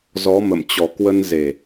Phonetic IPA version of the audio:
z ɔ˨˦ m ə̰˧˨ m t͡ɕ ɔ˨˩ k w ə˧ n z e˨˩

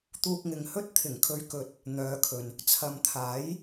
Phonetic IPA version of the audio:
t̪ uː˧ k̚ ŋ ɪ˨ ŋ h ɵ˥ t̚ t̪ʰ ɪ˨˩ ŋ kʰ ɵ˥ ɥ k ɵ˥ t̚ | n̪ œː˨˧ kʰ ɵ˨ n | t͡sʰ ɐ˨ m t̪ʰ aː˨˥ j

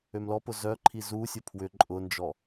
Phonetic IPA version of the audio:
ø m l ɔ p ʊ z œ ǃʰ i z u sʲ ʊ pʰ w ʏ ǃʼ ʊ n d͡ʒ ɔ

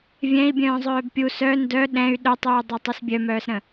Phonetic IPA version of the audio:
vʲ ɛ̃ i̯ bʲ œ̃ː zˤ œː b pʲ u s œ n d œ ɗ ɛ̃ y̯ ɗ œ tˤ yː dˤ œ tˤ u s bʲ œ m œː s ɾ ə̃

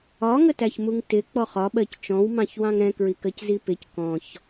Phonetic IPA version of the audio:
ɒ ŋ ə t æ ç m u ŋ t ɪ k͡p ɔ χ ɒ ɓ ɜ c t͡ʃ ɔ̃ w m ɑ̃ ç w ɑ̃ ŋ ɾ ɛ̃ k ɹ i k ɜ c z i p ɪ c k ɔ̃ ç

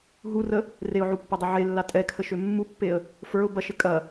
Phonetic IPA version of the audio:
ɦ u r ə | r e ʊ̯ ʕ u pː ɐ dˤ ə ʕ e lː a tʼ ɛ kʰ ə ʃ ø mː u pː e ə̯ | f ə˞ ʊ̯ b ɐ ʃ ɘ kʼ ɐ

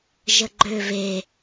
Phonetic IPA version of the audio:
ʒ ə ɡ͡ǃ ø v e

